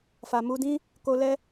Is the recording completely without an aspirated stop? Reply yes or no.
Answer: yes